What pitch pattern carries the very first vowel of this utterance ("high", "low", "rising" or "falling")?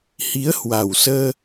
rising